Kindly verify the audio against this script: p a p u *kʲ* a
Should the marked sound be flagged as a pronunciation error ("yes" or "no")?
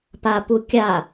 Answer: no